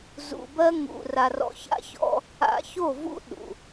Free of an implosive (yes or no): no